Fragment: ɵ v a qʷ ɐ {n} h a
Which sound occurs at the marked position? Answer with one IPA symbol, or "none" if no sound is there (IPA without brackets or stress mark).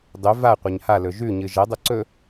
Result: ɲ